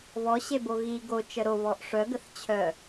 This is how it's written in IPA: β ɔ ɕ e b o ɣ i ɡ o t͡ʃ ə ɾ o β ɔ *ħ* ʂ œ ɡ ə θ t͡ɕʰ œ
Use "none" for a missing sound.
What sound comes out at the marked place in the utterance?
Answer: ʔ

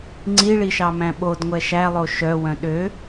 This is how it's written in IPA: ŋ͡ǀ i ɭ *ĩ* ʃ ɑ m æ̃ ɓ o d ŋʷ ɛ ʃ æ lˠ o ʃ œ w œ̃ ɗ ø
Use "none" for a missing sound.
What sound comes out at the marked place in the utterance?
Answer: i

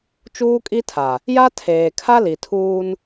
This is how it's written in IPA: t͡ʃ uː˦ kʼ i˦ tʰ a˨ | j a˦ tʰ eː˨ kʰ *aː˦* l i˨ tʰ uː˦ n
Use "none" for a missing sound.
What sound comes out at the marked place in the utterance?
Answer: a˦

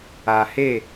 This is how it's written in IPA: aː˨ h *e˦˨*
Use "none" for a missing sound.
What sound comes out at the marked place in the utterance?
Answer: e˦˨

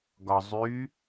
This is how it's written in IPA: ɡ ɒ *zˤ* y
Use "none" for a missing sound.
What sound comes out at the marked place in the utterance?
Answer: zˤ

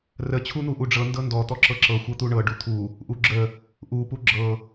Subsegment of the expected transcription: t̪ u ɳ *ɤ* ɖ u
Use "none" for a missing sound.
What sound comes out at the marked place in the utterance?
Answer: ɤ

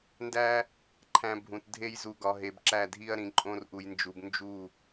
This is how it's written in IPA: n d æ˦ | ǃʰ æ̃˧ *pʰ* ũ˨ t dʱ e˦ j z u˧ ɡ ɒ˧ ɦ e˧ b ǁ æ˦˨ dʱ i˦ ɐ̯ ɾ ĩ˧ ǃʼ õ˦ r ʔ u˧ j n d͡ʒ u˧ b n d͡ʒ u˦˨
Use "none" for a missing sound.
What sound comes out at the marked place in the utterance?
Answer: bʱ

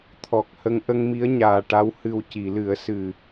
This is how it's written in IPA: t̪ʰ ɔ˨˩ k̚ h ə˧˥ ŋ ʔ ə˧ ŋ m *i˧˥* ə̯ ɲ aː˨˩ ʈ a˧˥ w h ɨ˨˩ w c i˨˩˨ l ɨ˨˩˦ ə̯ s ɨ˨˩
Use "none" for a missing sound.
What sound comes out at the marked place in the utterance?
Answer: i˧˥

